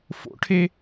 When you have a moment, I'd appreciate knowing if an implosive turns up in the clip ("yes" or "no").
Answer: no